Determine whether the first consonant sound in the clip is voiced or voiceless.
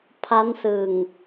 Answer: voiceless